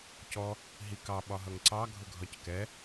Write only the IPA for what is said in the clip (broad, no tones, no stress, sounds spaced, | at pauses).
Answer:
c ɔ | ɦ i k ɑ ɓ ɒ ɦ ʌ ŋ ǀ ɑ ɡʱ ʊ ɡʱ ɒ c k ɛ